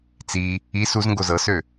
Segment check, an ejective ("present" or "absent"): absent